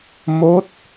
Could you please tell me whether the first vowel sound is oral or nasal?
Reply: oral